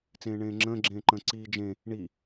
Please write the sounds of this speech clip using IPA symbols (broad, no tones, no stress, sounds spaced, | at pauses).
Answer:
t͡s ẽː ɳ ẽː ŋ͡ǁ ə̃ː ɡ͡ǁ ẽː ǃ ə̃ː ǀ iː d͡ʒ ẽ | ɳ i